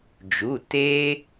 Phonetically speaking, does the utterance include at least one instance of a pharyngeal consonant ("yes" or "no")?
no